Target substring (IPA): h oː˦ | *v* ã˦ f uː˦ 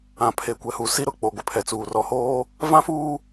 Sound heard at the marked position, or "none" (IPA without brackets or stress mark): v